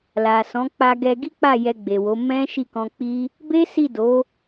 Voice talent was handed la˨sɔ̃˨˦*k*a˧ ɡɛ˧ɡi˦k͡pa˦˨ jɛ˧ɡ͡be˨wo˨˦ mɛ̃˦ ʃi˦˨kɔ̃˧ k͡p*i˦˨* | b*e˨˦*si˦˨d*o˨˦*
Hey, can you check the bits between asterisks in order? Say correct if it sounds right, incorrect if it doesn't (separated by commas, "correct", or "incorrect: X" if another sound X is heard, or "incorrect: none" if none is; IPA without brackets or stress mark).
incorrect: k͡p, incorrect: i˦, incorrect: e˦, correct